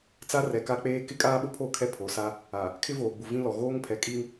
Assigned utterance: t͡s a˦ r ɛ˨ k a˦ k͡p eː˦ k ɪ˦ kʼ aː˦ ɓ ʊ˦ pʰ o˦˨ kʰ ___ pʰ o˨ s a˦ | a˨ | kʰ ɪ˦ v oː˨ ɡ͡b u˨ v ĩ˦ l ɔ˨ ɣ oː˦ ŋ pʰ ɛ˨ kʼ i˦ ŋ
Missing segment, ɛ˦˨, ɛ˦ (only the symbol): ɛ˦